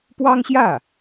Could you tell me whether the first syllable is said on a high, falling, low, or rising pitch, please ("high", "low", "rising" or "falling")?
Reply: high